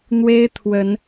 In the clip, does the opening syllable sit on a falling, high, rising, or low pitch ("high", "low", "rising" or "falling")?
high